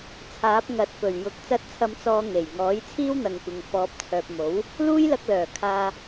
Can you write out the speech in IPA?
t͡sʰ aː˨˥ p̚ ŋ ɐ˨˥ t̚ p ɵ˨˩ ɥ j ʊ˨ k̚ t͡s ɐ˧ t̚ t͡sʰ ɐ˨˧ m t͡s ɔː˨˧ ŋ e˨˩ j ŋ ɔː˨˥ j t͡sʰ iː˥ w n̪ ɐ˨ ŋ kʷ ɪ˨ ŋ f ɔː˨ p̚ t͡sʰ œː˨ p̚ m o˨˥ w | l uː˥ j l ɐ˧ k̚ l œː˨˩ kʰ aː˨

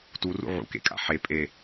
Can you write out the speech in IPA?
t u r ṵ ʕ ṵ k ḛ kʼ a̰ ħ e pʼ e

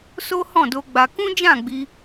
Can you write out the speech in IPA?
s o˦ h ɔ̃˦˨ d o˧ ɡ͡b a˧ k ũ˦ d͡ʒ ã˦˨ ɡ͡b i˧

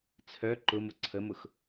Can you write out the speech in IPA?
t͡sʰ œ ǃ ʊ m ʊ ǀʰ ə m ʊ x

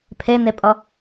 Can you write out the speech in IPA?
pʰ e n e pʼ ʌ

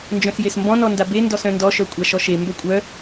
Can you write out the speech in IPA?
n d͡ʒ œ̃ s j e s m b ɔ̃ n ɔ n d a b e n d ɔ s œ̃ n d ɔ ʃ œ kʷʼ a ʃ ɔ ʃ e m b œ kʷʼ œ

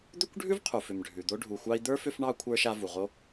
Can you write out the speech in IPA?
d̪ ʏ˥ kʷ ɖʱ ʉ˥ v qʰ u˩ f ʏ˩ m ɖʱ ʉ˩ d̪ o˥ ɖʱ u˨ xʷ ɑ˥ i̯ d̪ ə˞˥ f ʏ˦ f ɳ ɑ˦ kʷʰ ə˞˥ ʃ a˦ v u˩ ʁ o˥

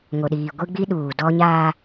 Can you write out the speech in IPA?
ŋ o˨ ɗ iː˨ ɡʷ i˦ ɡ͡b i˦ ɗ uː˨ d ɔ˦ ɲ aː˦

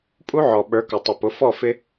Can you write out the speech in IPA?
pʼ u˦ ʕ ɔ˨ ɓ ə˞˨˦ k ʊ˨ tˤ ɪ˨ p ʊ˨˦ f ɔ˦˨ f ɪ˦

